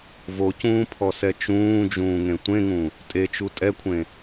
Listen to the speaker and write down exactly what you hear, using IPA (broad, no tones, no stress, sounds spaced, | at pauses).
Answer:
v o c ũː pʰ ɔ s ɛ t͡ʃ ũː d͡ʒ ũː ŋ ẽ tʷ ẽ ŋ ũ | tʼ e t͡ʃ u tʼ ɛ kʷʰ ẽ